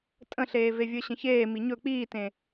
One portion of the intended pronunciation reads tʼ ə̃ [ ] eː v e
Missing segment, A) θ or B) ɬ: B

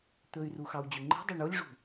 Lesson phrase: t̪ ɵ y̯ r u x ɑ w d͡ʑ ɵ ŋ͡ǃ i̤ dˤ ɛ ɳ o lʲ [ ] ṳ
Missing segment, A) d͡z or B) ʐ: B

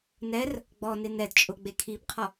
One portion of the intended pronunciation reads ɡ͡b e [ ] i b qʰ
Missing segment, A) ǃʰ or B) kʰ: B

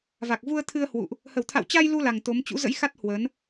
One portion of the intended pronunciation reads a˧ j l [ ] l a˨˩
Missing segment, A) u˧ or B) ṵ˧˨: A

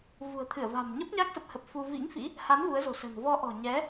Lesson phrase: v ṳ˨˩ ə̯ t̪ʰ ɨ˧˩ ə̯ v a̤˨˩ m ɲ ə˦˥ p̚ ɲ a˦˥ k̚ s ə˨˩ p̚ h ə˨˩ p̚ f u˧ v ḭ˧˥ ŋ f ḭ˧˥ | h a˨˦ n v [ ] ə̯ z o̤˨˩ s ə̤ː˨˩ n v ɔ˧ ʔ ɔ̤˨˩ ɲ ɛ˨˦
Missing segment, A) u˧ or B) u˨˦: B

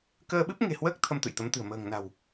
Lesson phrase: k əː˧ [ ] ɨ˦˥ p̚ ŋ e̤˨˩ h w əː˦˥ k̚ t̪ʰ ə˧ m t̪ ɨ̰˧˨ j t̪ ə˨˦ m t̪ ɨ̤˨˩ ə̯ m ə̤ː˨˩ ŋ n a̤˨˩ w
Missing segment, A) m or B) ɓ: B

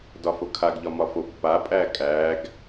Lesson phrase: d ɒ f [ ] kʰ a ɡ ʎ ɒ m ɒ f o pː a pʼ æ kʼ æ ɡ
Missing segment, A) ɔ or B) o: B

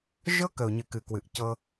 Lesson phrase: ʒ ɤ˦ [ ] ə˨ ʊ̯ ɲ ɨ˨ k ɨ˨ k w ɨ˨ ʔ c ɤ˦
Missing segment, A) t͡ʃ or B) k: B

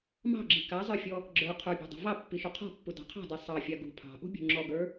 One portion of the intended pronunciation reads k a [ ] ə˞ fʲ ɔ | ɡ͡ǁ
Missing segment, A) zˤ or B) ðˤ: A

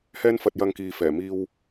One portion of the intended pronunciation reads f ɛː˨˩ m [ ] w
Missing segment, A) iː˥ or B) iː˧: B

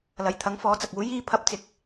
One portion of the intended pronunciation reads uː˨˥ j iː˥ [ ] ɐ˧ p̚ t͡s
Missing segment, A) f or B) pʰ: B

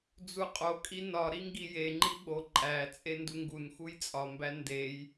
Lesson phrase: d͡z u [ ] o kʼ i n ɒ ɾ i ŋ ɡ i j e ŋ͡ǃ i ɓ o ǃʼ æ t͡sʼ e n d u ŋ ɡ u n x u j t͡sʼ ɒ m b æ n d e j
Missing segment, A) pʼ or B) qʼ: B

